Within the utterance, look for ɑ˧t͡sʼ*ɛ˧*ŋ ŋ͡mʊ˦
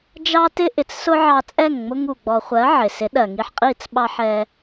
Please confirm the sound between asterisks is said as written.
no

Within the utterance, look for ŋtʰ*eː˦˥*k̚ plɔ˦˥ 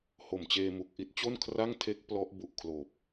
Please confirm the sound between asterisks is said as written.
no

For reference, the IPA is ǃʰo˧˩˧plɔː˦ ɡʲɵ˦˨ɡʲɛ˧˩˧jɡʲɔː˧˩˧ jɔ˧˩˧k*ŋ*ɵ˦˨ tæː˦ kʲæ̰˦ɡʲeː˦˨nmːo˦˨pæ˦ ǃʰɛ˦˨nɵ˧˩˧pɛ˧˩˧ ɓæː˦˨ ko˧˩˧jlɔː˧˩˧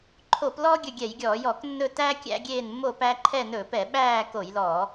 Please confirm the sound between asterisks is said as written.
no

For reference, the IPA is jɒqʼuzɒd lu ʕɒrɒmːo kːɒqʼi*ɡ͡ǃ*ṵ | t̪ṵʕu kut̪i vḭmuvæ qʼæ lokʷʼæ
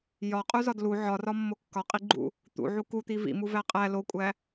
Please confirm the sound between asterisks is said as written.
yes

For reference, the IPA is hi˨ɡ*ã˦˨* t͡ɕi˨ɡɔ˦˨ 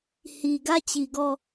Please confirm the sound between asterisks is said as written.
no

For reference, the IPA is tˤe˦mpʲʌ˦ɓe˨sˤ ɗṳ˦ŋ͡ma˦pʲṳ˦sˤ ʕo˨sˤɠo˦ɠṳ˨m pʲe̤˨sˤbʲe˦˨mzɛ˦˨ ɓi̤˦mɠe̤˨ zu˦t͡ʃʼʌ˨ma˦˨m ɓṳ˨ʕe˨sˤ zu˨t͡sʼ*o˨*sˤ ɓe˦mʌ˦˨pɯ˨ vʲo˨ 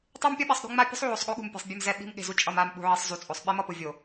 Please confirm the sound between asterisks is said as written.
yes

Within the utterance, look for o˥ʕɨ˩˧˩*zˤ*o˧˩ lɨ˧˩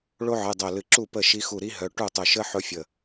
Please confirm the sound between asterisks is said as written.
no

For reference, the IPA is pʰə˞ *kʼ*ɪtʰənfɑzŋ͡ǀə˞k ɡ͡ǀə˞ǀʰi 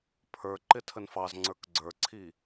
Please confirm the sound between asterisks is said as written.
no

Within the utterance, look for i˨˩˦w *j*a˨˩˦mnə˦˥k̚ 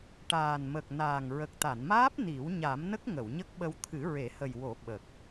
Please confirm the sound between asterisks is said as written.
no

